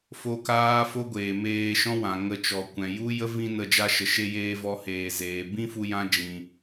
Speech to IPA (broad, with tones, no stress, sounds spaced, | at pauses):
f o˦ k aː˦ f o˦ ɡʷ eː˨ m eː˧ ʃ ɔ̃˦ w ã˨ ŋ ə˧ t͡ʃ ɔ˨ kʷ ɛ̃˨ j u˦ j ə˦ v ĩ˧ n ə˧ d͡ʒ a˧ ʃ ə˨ ʃ e˧ j eː˧ v ɔ˧ h eː˨ z eː˨ b ĩ˦ f u˧ j ã˧ d͡ʒ ĩ˨